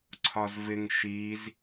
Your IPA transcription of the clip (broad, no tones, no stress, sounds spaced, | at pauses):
ǀʰ ɒ z v ɪ ŋ ʃ i z